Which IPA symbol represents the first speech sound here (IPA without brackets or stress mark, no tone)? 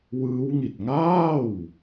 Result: w